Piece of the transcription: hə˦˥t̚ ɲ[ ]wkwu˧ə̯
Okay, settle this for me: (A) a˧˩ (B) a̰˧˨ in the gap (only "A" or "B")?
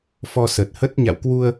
B